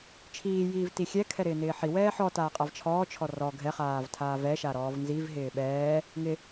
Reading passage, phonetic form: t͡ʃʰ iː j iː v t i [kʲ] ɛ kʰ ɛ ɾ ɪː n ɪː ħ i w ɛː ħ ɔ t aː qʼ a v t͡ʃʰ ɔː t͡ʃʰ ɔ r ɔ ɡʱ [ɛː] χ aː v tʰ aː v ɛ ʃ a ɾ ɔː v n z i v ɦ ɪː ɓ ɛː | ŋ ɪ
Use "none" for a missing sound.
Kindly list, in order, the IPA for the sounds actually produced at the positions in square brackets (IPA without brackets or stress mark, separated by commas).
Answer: xʲ, ɛ